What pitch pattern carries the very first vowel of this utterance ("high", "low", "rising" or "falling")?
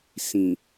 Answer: low